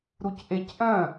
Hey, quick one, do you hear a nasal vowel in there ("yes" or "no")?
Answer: yes